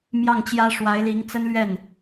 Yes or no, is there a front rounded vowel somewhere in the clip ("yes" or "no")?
no